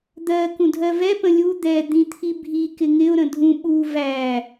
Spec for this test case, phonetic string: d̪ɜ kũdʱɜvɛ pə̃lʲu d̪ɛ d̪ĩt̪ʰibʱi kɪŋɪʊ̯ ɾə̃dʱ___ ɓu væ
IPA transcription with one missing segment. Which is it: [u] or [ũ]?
ũ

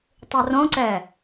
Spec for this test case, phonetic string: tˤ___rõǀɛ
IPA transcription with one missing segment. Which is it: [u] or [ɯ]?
u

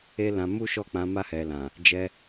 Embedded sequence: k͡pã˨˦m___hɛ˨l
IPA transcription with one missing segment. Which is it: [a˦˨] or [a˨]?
a˦˨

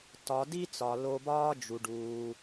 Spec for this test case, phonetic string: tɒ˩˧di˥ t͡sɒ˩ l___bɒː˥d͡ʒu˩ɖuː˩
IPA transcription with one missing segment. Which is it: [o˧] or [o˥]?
o˧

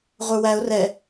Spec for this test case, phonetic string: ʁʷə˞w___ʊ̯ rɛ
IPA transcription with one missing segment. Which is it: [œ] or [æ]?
æ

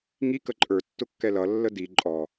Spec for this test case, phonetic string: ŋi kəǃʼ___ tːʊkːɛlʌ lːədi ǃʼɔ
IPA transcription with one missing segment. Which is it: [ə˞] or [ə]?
ə˞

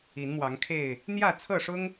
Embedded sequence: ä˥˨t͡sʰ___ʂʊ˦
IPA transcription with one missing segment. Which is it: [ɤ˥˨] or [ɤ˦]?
ɤ˥˨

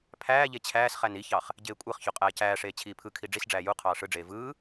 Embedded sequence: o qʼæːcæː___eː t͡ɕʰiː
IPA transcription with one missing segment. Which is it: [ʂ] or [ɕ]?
ʂ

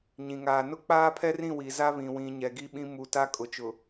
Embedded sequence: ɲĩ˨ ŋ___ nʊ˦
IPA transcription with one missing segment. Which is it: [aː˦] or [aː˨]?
aː˨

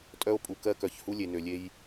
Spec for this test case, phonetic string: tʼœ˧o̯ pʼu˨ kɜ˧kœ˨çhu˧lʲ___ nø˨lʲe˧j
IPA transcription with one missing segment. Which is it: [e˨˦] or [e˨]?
e˨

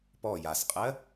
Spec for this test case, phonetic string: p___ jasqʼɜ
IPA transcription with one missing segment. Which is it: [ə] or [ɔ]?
ɔ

